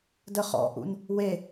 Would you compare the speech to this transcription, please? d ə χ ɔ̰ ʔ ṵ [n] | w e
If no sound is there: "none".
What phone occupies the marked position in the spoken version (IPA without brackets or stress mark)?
n